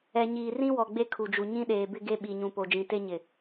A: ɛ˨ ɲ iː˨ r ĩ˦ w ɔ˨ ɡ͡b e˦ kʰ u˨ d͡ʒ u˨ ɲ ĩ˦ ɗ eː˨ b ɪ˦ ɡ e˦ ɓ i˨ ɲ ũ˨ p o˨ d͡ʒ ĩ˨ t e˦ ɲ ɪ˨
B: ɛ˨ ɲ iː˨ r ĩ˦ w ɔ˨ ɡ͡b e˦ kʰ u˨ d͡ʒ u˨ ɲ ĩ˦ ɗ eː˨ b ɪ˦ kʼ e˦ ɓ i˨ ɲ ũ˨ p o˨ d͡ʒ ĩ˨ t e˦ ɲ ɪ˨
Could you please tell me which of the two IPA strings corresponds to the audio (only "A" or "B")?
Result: A